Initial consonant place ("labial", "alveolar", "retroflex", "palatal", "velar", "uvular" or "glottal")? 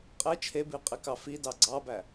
uvular